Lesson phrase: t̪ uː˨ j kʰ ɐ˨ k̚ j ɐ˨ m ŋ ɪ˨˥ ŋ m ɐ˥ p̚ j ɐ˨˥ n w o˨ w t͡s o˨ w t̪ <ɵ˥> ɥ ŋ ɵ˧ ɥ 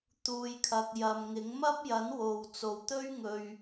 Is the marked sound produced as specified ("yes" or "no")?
yes